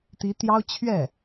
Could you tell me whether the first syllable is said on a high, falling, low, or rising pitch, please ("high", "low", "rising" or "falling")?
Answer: rising